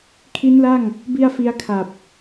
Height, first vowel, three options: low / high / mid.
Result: high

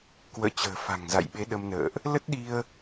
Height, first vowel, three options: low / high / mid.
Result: mid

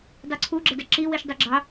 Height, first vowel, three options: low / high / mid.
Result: high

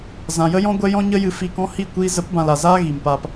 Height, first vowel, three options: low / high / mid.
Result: low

